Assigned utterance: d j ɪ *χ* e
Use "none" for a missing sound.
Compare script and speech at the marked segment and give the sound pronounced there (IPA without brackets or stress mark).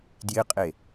qʼ